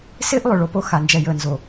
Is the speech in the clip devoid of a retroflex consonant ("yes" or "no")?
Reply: no